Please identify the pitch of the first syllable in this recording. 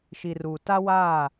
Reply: low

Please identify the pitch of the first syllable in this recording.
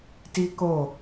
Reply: high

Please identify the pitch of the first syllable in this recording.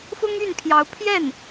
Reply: high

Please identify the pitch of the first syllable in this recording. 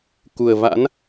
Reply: low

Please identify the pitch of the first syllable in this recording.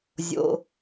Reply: low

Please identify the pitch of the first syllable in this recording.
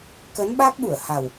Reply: rising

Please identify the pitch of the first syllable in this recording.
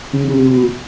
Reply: low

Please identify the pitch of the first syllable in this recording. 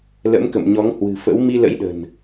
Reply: rising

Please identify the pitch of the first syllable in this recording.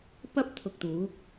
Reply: high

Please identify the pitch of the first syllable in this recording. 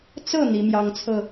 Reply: falling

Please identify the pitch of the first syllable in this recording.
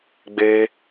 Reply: high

